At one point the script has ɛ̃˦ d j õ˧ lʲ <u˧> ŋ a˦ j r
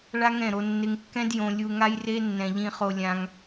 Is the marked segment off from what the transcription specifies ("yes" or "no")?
no